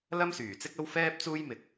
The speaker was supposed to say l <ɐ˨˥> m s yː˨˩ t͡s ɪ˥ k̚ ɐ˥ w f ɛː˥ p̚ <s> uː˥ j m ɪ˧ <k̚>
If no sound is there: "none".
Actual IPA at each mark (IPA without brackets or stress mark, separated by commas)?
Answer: ɐ˥, t͡s, k̚